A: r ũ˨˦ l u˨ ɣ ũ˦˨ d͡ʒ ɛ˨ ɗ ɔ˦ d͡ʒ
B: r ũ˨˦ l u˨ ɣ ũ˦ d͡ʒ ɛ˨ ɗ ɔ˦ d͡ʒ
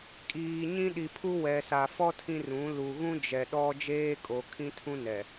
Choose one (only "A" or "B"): B